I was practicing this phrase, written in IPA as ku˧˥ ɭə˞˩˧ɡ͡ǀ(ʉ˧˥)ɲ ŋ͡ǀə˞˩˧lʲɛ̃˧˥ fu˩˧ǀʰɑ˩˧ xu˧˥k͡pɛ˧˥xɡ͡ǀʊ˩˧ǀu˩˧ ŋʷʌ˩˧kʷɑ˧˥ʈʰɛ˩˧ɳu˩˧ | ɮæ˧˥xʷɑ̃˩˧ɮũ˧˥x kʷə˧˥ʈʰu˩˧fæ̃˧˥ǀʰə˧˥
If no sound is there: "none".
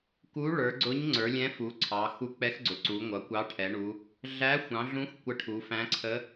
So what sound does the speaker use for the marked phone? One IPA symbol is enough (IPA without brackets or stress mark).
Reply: ʊ˧˥